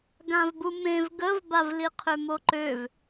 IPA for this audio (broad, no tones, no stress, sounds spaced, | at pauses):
ɡ ã v b u m ẽ v ɡ ə v b a v l i qʰ ø m o ǃ ø v